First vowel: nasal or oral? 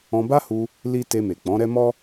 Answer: nasal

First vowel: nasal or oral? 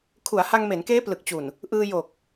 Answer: oral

